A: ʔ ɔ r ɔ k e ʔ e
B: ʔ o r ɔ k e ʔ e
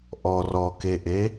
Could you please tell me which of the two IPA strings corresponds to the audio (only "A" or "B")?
A